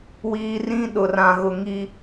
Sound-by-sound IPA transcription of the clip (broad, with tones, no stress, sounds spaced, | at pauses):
w iː˨ r ĩ˦ ɗ ʊ˨ r ã˨ ɣ ʊ˨ ŋ i˦